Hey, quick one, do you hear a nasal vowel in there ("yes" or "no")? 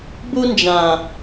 yes